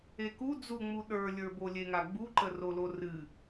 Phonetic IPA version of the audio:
eku d͡zuŋ͡mu ɗə˞lʲə˞bo lʲeŋaɡ͡buǃə rolorɨ

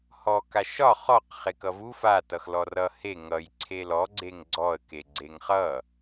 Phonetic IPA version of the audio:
hɔ kaʃɒ χɔq χekʌvu fa tʌxlɔrʌ he ŋʌj ǀʰelɔ ɡ͡ǀeŋɡ͡ǀɔə̯ keɡ͡ǀeŋχʌ

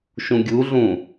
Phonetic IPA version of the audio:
ʃũɡʲuɮũ

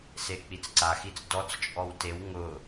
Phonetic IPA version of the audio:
sek͡pit͡sǀaxit͡s dɔt͡st͡ʃʼɔw tew ŋʊ

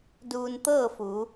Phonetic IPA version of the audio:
duː˧nt̪ɤː˥˨fu˩˧

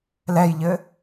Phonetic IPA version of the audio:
lɛjʎɘ

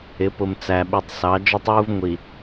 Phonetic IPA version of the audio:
ɪ˨˦pʊ˨m t͡sæ˨ɓi˨tˤ sɑ˨˦ d͡ʒɔ˦tˤwu˦v ŋʷi˨

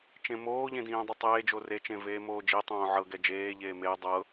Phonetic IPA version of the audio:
t͡ʃẽmoːʎẽ dĩːdˤɛtˤeːd͡ʒo ret͡ʃẽ veːmoːd͡ʒitˤõː ʕɤ ɡɛd͡ʒeːʎeː me dˤɤ

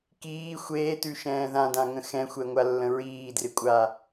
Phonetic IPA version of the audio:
kiː xʷeːtʉʃɛ̃ː ðãdãŋə̃ xɛ̃xʷɛŋʷalːə̃ ɹiːdrɪkʷʼa

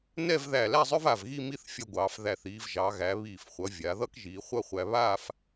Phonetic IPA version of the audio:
nɛ˥˧vðæ˧˩læ˥˧zˤœ˥v a˧˩vɣi˥˧mi˥˧θ fʲʌ˧ ɡʷɑː˩˧fðæ˧˩θ iː˩˧vʒɑ˩˧ɣæ˩˧ βiː˧˩fχʷʌ˩˧ vʲa˩˧ ðʌ˥kʒiː˩˧χʷʌ˥˧χʷæ˧ βaː˥˧f

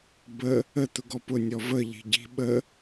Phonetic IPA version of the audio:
bə | ə t̪ʊɡɔpʊ nʲɔvə ʎi̤ɟi̤ ɓə

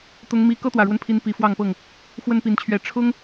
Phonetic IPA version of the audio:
t̪ʊ˦ŋmi˦ kɤ˦t̪wä˨˩ɻwə˦npʰi˨˦n pi˨˦fwɑ˥˨ŋpɤ˥˨ŋ | xwə˦npi˨˦nt͡ɕʰɥɛ˨˦ ʈ͡ʂʰʊ˦ŋ

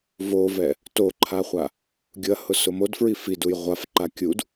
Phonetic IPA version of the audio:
vovɛ | toǃʰaχʷa | ɡʲʊɐ̯hʊsʊ modfɹi fiduj ʁʷafǃa kʲud

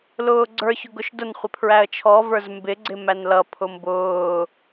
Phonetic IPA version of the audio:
lʊːɡ͡ǀə˞ç ʊɡʊʃdʊn χʷɪpʰɹæə̯t͡ʃʰɔ və˞zmbɪ ɡ͡ǀɪmænlʌ pʰʊmbʊː

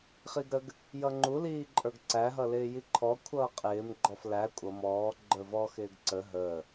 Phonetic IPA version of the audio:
χiɡɾəɡ | jʌŋ͡ǃu liːǃʼə˞ɡǀæ ɦʌlɪːjiǃʰɔ kʷʰʌːqʼɪːm ɡ͡ǃɔflæ kʷʼʌ mɔː ɡ͡ǃə˞vɔ xɪːɡǀə ɦəː

